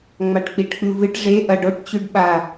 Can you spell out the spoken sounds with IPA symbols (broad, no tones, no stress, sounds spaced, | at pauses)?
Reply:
ŋ͡m a ʈ k͡p i ʈ k͡p ʉ v ɨ ʈ ʐ e ʔ ɐ ɖ o ʈ t͡ɕ ʉ ɖ ɓ a